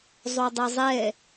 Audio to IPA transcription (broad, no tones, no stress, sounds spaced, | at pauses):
zˤ o dˤ ɛ zˤ ɛ